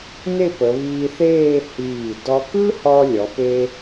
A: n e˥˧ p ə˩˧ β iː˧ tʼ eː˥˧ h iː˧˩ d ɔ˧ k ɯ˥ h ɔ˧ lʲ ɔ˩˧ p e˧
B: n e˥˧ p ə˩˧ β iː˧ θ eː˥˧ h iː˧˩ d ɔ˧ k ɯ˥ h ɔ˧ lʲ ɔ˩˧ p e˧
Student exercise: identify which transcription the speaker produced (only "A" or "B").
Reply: B